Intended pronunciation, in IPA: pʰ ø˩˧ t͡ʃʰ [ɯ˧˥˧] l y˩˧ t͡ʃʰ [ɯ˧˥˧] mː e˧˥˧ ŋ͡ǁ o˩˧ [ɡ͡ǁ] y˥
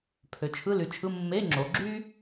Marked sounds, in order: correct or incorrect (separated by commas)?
correct, correct, correct